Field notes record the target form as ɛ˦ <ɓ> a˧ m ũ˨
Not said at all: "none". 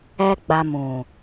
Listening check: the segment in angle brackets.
ɡ͡b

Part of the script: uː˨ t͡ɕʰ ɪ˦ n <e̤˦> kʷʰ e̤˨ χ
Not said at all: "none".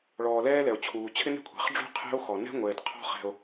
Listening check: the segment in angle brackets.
e̤˦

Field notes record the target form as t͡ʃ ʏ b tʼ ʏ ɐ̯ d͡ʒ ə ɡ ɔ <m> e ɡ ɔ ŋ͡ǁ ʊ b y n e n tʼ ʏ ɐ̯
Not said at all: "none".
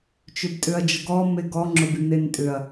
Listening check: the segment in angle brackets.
m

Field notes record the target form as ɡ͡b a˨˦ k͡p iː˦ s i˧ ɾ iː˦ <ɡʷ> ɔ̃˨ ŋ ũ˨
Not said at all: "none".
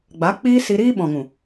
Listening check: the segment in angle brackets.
ɓ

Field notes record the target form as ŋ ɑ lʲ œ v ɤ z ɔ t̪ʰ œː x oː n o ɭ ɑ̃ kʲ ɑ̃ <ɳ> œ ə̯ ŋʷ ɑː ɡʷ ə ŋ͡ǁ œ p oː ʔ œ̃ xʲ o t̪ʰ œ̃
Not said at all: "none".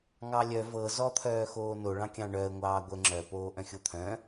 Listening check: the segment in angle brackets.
ɳ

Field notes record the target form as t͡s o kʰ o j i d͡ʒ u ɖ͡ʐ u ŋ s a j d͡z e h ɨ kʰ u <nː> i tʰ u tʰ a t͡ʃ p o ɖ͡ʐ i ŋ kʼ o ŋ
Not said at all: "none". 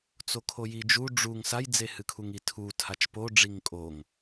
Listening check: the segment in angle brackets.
ŋ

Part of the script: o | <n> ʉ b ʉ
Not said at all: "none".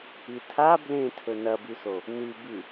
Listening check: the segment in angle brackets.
n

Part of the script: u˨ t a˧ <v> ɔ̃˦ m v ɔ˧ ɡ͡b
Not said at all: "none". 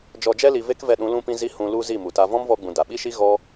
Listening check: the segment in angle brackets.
v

